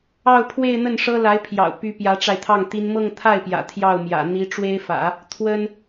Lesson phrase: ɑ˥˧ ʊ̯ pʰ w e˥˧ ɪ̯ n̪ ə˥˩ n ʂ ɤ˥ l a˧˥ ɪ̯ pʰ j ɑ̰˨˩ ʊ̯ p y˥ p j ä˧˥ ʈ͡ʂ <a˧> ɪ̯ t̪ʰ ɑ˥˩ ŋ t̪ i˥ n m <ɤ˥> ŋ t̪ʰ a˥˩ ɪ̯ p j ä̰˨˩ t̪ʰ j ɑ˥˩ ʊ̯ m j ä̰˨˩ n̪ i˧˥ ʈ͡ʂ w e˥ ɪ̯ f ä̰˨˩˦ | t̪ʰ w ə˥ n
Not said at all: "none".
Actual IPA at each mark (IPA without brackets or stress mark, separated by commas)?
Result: a˧, ɤ˥˧